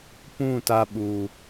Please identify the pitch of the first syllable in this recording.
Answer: falling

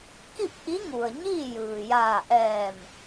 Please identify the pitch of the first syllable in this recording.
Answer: falling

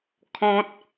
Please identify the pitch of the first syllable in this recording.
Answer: high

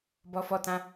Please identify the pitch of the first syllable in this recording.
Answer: high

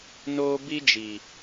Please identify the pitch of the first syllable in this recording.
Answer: high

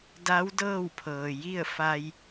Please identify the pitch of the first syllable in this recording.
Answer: rising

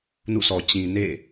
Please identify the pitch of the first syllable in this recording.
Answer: falling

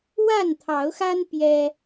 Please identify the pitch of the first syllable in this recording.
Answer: falling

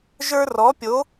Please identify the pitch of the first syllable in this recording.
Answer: high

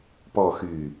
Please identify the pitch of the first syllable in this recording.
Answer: falling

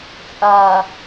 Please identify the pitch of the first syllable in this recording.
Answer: low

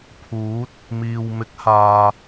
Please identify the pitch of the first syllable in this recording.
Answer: rising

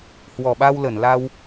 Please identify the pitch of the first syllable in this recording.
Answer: low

